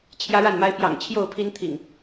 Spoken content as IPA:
t͡ɕʰ j ä˦ ɻ a˥˨ n m a˦ ɪ̯ p j ɑ̰˨˩ ŋ t͡ɕʰ j o˥˨ ʊ̯ pʰ i˦ n t̪ʰ ḭ˨˩ ŋ

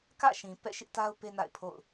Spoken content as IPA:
k ä̰˦˨ ʃ ĩ˨ p ɛ̰˦˨ ʃ ɪ˦ ʔ t a˦ ʊ̯ p e˦ n a̰˦˨ ɪ̯ pʰ o̰˦˨ ʊ̯

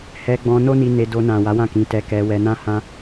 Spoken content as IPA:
h ɛ˧ ɡ͡b ɔ̃˧ n o˦ n i˧ n e˧ d o˧ n ã˨ w a˨˦ w ã˦˨ k ĩ˨˦ t ɛ˧ k ɛ˧ w ɛ˧ n ã˦ h ã˦

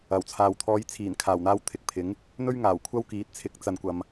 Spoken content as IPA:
ɐ˨˩ w t͡sʰ aː˨ w t̪ʰ ɔː˨˧ j t͡sʰ iː˨˩ n kʰ aː˨˩ w n̪ aː˧ w t̪ʰ ɪ˨ k̚ pʰ ɪ˨˥ ŋ | n̪ ɵ˥ ɥ ŋ aː˨˩ w kʷʰ ɐ˥ w k iː˨˥ t̚ t͡sʰ ɪ˨˥ k̚ t͡s ɐ˨ n kʷ ɐ˨ m

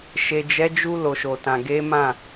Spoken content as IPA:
ʃ e˨ d͡ʒ ɛ˨˦ d͡ʒ u˧ l o˨ ʃ o˨ t ã˨ ɡ e˨˦ m ã˦˨

